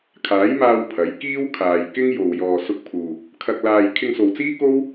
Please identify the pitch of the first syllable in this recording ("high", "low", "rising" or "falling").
rising